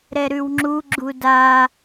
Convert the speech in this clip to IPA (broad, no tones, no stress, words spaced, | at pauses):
ɾɛɾʉwŋ͡ǁu ɡ͡ǁuda